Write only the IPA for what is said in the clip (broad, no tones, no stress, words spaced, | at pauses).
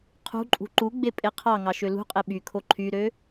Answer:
qʰṳǃʼṳ ǃuɡ͡be pʼeqʰɑŋɑ ʃølṳqʼe ɓykʰo ǃʰyɾø